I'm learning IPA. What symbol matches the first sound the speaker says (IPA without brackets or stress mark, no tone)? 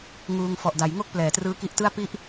ŋ